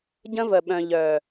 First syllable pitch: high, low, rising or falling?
high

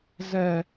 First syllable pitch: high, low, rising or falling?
low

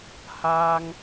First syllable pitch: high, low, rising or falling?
high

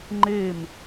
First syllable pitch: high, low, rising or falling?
falling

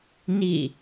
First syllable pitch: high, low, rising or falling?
falling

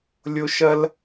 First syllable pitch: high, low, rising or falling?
high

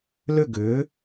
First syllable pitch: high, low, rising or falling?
falling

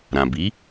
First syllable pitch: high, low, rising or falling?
low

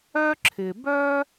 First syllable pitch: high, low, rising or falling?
high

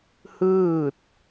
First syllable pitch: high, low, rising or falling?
falling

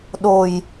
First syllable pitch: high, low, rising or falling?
low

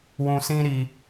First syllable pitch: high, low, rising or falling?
low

